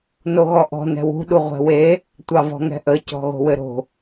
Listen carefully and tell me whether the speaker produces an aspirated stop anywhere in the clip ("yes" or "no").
no